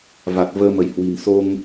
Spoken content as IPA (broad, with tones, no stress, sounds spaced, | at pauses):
v a˨˩ t̚ v əː˧ m ə˧˩ j h w i̤˨˩ n s o˧ ŋ